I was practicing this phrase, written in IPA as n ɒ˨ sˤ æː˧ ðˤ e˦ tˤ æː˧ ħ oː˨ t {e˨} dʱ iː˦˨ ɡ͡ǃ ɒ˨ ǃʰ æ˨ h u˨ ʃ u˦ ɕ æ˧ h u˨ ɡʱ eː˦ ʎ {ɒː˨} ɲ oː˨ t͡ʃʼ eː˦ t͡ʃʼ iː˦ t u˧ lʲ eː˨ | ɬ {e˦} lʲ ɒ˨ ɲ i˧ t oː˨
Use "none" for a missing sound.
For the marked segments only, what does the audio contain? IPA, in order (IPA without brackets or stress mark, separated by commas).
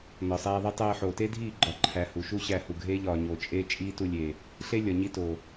e˦, ɒː˨, e˦